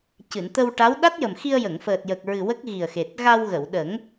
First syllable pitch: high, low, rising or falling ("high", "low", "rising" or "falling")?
low